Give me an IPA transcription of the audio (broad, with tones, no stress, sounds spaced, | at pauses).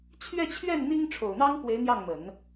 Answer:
t͡ɕʰ ɥ ɛ˥˧ t͡ɕʰ ɥ ɛ˥˩ n n̪ i˥ ŋ ʈ͡ʂʰ o˨˩ ʊ̯ n̪ ɑ˥ ŋ k w e˧˥ ɪ̯ n̪ j ɑ˥˩ ŋ m ə˨˩˦ n